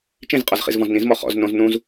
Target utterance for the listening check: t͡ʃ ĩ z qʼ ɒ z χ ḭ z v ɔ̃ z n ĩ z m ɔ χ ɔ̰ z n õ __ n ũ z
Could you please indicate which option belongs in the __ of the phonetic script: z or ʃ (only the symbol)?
z